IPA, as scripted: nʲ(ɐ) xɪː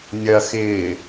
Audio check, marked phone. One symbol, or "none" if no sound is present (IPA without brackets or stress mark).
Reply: ɐ